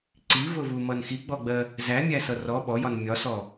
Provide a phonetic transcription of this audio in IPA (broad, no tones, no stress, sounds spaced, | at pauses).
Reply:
ǀ i v ʊ v u m ʌ n x i ɡ͡b ɔ ɡ͡b ɜ | z æ mʲ æ s ʌ r ɔ ɓ ɔ j ɒ n mʲ ɒ s ɔ